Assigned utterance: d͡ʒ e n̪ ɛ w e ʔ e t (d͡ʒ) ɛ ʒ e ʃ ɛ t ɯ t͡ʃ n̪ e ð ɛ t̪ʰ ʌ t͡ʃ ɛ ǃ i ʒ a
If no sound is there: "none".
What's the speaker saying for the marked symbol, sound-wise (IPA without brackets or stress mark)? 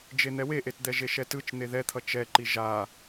d̪